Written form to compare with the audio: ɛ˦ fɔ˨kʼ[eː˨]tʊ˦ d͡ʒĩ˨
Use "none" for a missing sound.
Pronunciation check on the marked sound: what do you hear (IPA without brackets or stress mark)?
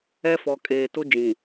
eː˨